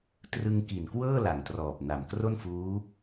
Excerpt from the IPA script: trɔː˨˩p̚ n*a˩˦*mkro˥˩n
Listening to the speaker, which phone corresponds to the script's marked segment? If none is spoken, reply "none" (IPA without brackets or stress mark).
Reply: a˨˩